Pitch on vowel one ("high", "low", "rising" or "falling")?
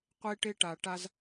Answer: high